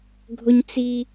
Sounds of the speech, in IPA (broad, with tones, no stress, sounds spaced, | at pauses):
ɡʱ ʊ˦ ɲ t͡s i˦